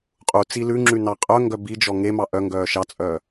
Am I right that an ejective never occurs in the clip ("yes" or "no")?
no